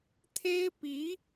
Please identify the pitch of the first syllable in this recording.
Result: high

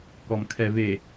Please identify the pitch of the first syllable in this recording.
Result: low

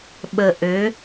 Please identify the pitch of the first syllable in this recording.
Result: low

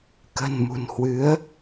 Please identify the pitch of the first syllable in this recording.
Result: low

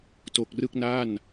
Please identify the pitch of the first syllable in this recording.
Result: low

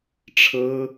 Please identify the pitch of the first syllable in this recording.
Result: high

